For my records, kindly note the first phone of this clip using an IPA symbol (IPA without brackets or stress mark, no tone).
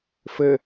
f